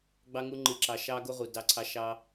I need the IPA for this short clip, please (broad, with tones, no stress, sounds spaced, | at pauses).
ɡ͡b ɑ˦ ŋ u˦ ŋ͡ǃ ɨ˧ ǁ ɑ˧ ʃ ɑ˦ ɡ o˦ ʁ u˨ d ɑ˦ ǀʰ ɑ˦ ʃ ɑ˦